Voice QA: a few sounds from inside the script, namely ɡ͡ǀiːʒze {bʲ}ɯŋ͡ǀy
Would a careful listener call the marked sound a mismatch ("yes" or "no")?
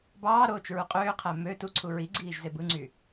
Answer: yes